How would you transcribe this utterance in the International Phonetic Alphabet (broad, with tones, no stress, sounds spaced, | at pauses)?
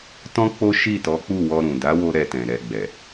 t ɔ̃˦ k͡p o˦ ʃ i˦˨ t ɔ˨˦ k͡p u˦˨ w ɔ˧ ɾ ũ˨ d a˨˦ w o˧ ɾ ɛ˧ t ɛ̃˨ ɾ ɛ˨ ɡ͡b ɛ˨